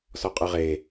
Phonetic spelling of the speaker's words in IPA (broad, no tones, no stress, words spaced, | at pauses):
sɔqʼɯʁe